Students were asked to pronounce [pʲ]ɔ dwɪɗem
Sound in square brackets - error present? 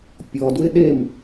no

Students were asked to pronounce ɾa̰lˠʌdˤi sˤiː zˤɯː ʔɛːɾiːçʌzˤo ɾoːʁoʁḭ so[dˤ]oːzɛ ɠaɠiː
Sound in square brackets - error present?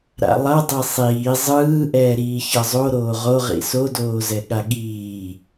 yes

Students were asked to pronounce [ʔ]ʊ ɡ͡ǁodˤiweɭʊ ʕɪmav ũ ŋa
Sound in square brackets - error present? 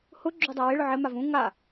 yes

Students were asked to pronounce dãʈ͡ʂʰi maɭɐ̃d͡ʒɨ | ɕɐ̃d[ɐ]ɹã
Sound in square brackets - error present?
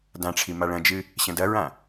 no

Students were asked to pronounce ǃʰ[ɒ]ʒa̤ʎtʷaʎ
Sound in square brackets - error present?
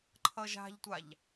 yes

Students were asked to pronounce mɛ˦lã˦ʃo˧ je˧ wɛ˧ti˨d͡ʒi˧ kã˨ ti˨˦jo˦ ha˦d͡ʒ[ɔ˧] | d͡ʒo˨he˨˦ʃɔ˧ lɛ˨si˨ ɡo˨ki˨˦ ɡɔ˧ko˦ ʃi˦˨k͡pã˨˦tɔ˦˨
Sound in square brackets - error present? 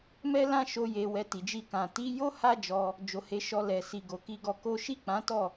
no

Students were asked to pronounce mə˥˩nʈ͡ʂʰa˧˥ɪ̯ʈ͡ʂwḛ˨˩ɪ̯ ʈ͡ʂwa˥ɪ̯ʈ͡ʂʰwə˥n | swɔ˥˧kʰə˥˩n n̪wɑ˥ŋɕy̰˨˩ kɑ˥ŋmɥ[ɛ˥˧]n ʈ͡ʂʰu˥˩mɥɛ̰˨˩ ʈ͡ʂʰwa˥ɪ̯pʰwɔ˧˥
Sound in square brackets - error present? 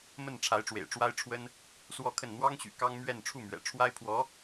no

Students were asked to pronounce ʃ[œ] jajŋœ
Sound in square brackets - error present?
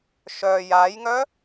no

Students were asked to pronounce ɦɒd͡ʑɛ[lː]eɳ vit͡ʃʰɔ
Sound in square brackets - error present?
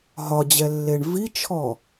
no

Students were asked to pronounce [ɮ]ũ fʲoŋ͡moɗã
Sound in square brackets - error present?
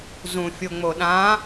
yes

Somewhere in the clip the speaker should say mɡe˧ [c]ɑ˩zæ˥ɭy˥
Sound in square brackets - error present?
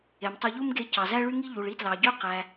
no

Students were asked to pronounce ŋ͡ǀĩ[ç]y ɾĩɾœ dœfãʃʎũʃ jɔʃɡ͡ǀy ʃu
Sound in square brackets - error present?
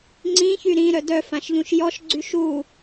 no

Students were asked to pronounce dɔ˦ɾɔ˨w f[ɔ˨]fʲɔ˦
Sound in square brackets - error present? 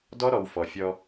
no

